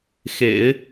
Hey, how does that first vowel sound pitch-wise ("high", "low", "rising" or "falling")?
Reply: low